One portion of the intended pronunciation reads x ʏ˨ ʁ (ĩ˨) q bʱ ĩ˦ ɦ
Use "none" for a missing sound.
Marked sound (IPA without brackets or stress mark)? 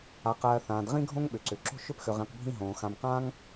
ĩ˨